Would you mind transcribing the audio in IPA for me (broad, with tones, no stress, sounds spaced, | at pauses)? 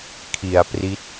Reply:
kʰ i˩˦ a̯ p r i˦˥ t̚